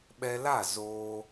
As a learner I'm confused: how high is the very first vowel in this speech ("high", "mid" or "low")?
mid